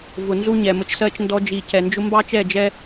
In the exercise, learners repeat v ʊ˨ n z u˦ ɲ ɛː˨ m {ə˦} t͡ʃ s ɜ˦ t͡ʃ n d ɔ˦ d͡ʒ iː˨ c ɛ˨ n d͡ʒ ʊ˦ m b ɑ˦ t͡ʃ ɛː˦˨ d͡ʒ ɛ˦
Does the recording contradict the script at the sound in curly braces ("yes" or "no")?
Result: no